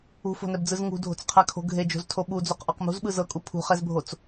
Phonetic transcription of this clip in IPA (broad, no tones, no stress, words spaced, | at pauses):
ṳfo̤nɛbd͡zɯz ŋṳdʱo̤t͡sqʰakʰo̤ ɡʱed͡ʒo̤ztʰo ɓud͡zoqʔɔq mṳzɓɯ zɤkʼu pʰṳχɛzbʱot͡s